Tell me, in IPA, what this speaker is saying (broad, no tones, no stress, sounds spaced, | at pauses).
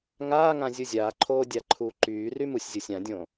ŋ aː ŋ ã zʲ u zʲ aː ǃʰ oː dʲ a ǃʰ uː ǃ yː r y m u sʲ zʲ o sʲ ã dʲ õ